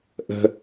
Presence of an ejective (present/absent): absent